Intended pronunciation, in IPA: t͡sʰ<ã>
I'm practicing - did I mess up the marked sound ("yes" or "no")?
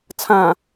no